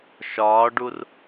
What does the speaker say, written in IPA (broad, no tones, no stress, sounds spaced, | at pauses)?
ʃ ɒː ɖ u r